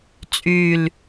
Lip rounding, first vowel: rounded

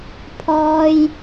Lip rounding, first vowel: rounded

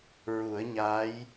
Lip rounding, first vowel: rounded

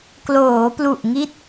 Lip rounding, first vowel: rounded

